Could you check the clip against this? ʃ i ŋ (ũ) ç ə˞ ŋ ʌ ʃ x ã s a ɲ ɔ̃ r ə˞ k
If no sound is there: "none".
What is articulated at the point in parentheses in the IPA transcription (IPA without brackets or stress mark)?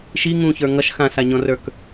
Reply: ũ